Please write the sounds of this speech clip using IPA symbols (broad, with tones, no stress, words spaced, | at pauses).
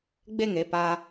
ɡ͡be˦˨ŋe˦˨ pa˦